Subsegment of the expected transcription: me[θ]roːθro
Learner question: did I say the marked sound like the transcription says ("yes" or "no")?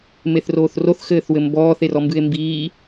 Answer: yes